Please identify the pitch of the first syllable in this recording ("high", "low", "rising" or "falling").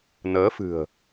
rising